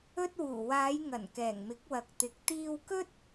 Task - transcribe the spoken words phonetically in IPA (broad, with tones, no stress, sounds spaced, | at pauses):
ɵ˥ t̚ w uː˨˩ w aː˨˧ j ŋ ɐ˨˩ n k ɛː˨˩ ŋ m ɪ˨˥ k̚ w ɐ˨ k̚ t̪ ɪ˨˥ k̚ t̪ iː˧ w k ɵ˥ t̚